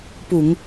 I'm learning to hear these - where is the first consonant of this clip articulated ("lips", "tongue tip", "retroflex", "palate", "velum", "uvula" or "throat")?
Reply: lips